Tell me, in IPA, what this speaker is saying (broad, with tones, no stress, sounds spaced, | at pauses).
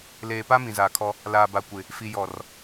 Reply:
l eː˨ p a˦ m ĩ˨ z aː˨ kʰ ɔ˦ | l aː˨ b a˨ kʷ ɪ˨ | f i˨ j ɔ˨ r